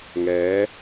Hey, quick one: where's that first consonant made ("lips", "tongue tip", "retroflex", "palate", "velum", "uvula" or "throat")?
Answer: velum